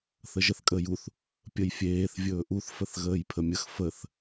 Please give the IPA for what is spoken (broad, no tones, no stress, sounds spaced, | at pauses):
θ ə ʒ ə θ kʼ əː j u θ | pʲ ə j fʲ eː θ vʲ ɵː ʔ u θ f ə θ ɣ əː j pʰ ə mʲ ə x f ə θ